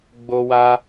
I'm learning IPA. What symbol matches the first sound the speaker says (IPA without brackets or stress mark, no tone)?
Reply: ɡ͡b